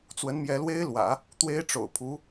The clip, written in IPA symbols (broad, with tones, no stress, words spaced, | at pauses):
t͡swə˧˥nmjɛ˧˥lwe˥ɪ̯lwä̰˨˩˦ | t̪we˥ɪ̯ʈ͡ʂo̰˨˩ʊ̯ pʰu˧˥